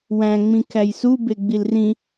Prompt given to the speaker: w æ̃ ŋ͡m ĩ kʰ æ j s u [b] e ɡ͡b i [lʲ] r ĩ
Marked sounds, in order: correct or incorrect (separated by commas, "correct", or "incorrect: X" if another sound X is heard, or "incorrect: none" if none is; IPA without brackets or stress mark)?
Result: correct, incorrect: l